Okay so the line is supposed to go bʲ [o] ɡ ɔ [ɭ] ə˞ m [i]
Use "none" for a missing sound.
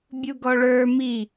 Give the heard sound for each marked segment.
u, ɭ, i

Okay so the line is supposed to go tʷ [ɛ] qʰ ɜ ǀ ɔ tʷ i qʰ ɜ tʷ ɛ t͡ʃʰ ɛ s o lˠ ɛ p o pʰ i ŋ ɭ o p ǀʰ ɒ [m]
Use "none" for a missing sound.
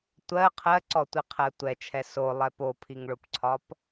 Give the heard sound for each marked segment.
ɜ, p

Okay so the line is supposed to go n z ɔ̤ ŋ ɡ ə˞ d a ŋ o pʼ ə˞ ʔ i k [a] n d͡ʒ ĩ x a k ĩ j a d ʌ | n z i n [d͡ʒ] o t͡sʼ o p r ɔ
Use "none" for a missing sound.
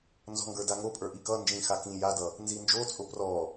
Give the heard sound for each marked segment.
ʌ, d͡ʒ

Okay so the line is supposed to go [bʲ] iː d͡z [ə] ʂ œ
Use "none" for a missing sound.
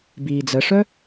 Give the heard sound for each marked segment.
b, ə

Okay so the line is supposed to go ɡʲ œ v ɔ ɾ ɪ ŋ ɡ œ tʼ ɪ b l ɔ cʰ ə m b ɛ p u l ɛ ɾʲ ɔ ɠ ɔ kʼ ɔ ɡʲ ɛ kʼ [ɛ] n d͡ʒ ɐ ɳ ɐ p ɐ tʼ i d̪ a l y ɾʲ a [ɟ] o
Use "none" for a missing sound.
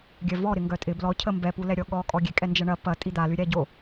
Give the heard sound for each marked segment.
ɛ, ɟ

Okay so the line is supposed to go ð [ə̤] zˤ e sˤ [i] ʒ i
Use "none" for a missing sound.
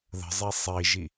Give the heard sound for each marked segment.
ə̤, i

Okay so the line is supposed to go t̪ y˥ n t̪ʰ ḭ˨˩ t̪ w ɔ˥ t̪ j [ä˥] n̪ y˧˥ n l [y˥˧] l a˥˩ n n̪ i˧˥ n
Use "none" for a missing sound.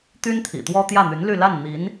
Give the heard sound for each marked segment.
ä˥˩, y˥˧

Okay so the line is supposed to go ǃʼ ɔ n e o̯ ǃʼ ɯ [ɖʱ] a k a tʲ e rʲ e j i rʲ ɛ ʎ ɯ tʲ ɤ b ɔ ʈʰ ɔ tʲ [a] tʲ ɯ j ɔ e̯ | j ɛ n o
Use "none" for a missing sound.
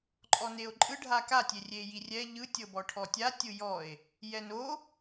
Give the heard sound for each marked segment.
ɖʱ, a

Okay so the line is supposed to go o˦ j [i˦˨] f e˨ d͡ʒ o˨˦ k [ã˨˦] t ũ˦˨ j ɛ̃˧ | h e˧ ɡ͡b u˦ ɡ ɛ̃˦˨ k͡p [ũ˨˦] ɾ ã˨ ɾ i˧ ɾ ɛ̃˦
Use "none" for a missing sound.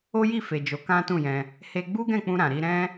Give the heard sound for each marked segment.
i˦˨, ã˦, ũ˧

